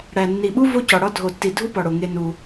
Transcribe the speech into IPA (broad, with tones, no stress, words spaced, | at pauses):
ɽæ˨nːi˨ɓu˦ vo˦cɒ˨ɽɒ˦ dʱo˨tːi˨ dʱu˦pɒ˨ɽo˨ ŋe˦nu˦